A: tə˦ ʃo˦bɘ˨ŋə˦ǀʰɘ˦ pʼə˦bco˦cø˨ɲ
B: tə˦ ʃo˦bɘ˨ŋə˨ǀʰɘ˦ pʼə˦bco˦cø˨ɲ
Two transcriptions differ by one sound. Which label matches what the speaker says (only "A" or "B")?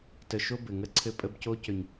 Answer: A